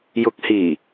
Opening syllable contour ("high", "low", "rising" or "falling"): low